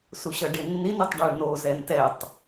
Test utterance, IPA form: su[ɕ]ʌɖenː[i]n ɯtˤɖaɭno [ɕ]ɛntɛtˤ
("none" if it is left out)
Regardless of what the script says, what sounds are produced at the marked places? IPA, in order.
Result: ɕ, i, z

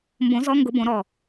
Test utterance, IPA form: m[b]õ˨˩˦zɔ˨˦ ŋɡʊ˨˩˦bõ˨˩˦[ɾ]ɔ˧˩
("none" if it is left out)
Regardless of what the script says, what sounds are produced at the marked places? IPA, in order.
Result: b, ɾ

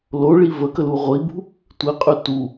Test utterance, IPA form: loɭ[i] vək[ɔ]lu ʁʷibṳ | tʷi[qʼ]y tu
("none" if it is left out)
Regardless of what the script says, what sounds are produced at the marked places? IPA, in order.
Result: i, ə, qʼ

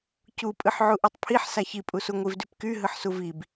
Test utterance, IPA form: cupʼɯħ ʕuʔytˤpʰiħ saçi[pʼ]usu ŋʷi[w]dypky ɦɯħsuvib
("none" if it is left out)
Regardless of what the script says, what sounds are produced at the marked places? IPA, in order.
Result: pʼ, v

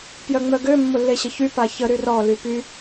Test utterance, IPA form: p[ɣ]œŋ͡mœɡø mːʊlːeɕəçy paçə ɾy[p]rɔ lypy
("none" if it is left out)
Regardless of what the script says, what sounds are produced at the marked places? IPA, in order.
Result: j, none

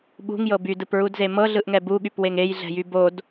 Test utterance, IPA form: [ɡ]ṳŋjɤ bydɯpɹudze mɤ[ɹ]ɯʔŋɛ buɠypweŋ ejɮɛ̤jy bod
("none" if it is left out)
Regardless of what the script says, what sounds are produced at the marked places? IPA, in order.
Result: ɓ, ɮ

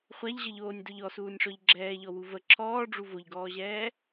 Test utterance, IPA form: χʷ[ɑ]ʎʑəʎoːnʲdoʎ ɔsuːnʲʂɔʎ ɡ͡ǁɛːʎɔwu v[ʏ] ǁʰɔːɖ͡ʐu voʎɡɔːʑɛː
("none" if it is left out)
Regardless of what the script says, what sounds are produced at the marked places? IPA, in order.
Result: a, ə

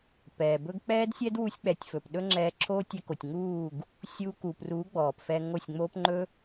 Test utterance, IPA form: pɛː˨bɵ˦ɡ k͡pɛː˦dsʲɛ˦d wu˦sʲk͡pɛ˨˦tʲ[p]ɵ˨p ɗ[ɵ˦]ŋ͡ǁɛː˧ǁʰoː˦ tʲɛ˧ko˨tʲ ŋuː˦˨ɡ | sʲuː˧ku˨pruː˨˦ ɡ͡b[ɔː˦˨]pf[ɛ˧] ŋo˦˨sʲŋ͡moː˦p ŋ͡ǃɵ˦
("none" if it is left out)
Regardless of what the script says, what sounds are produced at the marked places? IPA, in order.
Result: f, ɵ˦, ɔː˨, ɛ˧

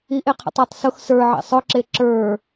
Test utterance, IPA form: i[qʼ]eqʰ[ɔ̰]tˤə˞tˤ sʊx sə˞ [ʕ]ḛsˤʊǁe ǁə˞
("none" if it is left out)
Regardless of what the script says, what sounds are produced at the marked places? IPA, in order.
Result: ʔ, ə̰, ʕ

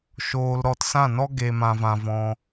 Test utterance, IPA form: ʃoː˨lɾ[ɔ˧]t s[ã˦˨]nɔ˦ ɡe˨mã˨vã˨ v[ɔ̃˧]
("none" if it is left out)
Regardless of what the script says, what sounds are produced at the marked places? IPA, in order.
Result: ɔ˨, ã˦˨, ɔ̃˧

